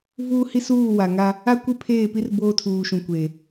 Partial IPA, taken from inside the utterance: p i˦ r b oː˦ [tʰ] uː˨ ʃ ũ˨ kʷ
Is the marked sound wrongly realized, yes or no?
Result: no